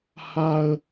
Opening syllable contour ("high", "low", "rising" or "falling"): high